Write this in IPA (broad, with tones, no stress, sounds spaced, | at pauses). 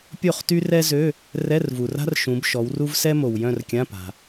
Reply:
pʲ o˥˩ χ t y˥ r ɛ˥ z ø˧˥˧ | r ɛ˧˥˧ r v u˨ r a̤˥ r ʃ ũ˨˦ b ʃ ɔ˨˦ w r u˥ v s ɛ˥ m o˨ w j œ̃˥˧ r kʲ ã˧˥˧ p a̤˨